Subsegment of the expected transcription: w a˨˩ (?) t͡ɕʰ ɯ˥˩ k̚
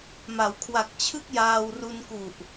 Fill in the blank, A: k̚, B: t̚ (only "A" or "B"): A